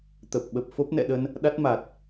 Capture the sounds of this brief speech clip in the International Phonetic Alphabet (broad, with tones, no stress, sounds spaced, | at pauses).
t̪ ə˨˩ p̚ ɓ ə˨˩ p̚ f o˦˥ p̚ n ɛ̰˧˨ ɗ ə˧ n | ɗ a˦˥ t̚ m a˨˩ t̚